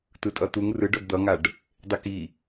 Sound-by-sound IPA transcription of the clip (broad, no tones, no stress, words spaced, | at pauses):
tɯtʼʌtuŋ rɯɖ ʌdd̪ʌŋaɖ | dˤiki